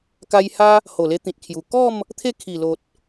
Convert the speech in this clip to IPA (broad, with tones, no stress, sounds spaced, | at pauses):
k a˧ j h a˦ | h o˨˩ l e˧ t̪ ĩ˨ t̚ kʰ j u˨˩ k ɔ˥˧ m | t̪ʰ e˥˧ kʰ i˨˩ l o˨ t̚